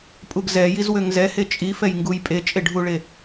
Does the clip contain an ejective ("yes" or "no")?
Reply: yes